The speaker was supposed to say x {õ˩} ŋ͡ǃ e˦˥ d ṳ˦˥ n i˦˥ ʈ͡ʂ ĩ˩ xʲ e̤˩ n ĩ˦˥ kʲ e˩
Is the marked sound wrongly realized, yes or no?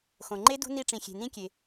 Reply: no